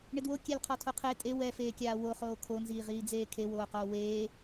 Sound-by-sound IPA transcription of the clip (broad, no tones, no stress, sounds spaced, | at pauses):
ɳ ɪ d w o kʲ ɛ l qʰ ɔ tʰ o qʰ e tʼ e w ɛ f eː kʲ aː w o χ oː kʰ o n z iː ʁ iː d͡z eː kʰ e w oː q oː w eː